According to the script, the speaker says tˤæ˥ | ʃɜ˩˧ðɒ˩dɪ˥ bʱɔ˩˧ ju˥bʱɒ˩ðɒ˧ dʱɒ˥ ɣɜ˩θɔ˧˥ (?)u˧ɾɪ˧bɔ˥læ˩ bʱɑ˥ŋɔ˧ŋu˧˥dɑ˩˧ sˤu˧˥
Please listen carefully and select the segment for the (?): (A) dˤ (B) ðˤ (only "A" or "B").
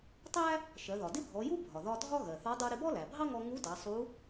A